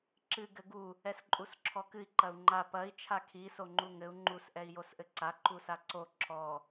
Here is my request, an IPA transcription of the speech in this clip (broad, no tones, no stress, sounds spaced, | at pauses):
ǁ ɨ ɡ ɘ ɡ u | ɛ s ǃʼ u s ǁʰ ɔ k ɨ i̯ ǃ ɐ u̯ ŋ͡ǃ a p ɐ i̯ t͡ʃʰ a kʰ i s o ŋ͡ǃ u ŋ ɘ u̯ ŋ͡ǃ u s ʔ ɛ i̯ j o s ʔ ɘ ǀ a ǃ u s a ǀ o ǁ ɔ